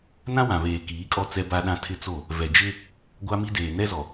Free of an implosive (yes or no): no